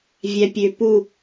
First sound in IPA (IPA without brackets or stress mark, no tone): vʲ